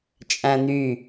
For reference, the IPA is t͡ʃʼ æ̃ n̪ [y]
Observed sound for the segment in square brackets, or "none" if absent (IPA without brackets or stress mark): y